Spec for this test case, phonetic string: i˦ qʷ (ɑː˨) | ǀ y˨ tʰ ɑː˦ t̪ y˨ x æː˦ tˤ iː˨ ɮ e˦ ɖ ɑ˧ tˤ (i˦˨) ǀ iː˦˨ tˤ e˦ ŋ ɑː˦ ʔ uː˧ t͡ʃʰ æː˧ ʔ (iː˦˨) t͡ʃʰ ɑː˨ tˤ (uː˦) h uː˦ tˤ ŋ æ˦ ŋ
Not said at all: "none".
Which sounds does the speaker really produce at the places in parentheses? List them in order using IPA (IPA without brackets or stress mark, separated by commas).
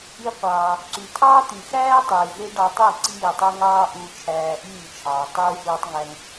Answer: ɑː˧, i˦˨, iː˦˨, uː˦